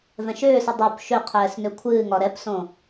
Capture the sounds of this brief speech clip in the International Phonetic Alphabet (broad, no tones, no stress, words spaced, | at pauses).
vɛ̃ʃʏːsɨ dˤup ʃø qʰɛːsnøkʷʰɨːŋɒ ɾɛpsõ